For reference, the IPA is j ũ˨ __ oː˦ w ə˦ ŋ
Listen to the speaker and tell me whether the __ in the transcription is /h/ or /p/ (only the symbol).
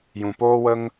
p